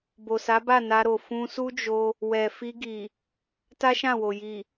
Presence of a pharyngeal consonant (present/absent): absent